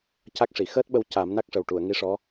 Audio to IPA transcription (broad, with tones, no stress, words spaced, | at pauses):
ca˦˥k̚ʂi˨˩˨ xəː˦˥t̚ɓə˧w ca˨˩˦mna˦˥k̚ʂə˨˩w ʈu˨˩˨ə̯ŋi˧˥ ʂɔ˧˥